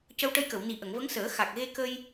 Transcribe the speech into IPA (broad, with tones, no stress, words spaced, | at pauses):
cə˧wʈə˧jkə˨˩˨w ni˨˩ ʔə˨˩˨ŋvə˧˥ŋsəː˨˩˦ xa˨˩k̚ɣe˧kə˧j